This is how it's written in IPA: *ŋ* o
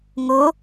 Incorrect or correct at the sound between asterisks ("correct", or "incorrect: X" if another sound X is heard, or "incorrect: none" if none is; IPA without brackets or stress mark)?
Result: correct